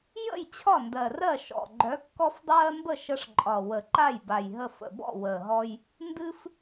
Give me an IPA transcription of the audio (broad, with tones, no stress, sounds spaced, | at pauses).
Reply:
j ə̰˥˩ j t͡ɕʰ ɒ˥˩ n d ɜ˨˩ r ɜ˥˩ ʃ ɔ̰˨˩ ɡ͡ǃ œ˨˥ kː ɔ˦ f dˤ ɜː˦ m b ə˥˩ ʃ ə˦ ʂ ǃʼ ɒ˨˩ w ə˨˩˦ ǃ a˥˩ j b a˨˩ j ɦ ə˨˩ f ə̰˨˩ b ɔ̰˥˩ w əː˨˩ ɦ ɔ˦ j | n d ɨ˦ f